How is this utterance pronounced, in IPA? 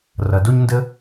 rʌ˩do˥ɲndə˥

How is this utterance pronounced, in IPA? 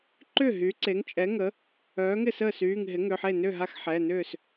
ǃʏ˥˩ ɦy˩˥ǀe˩˥ŋt͡ʃʼɛ˩˥ŋə˩˥ | œː˩˥ŋɪ˥˩səː˥˩syː˩˧˩ŋ ɦɪ˩˥ŋʏ˩˧˩ħe˥˩ nʏ˥˩ɦa˥˩xħɛ˩˧˩nʏː˥˩s

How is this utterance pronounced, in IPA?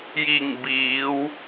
ji˧˩ŋbiː˩˧w

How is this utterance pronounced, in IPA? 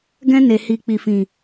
ɡɛ̃˦ ne˧ hi˧ k͡pi˨fĩ˨

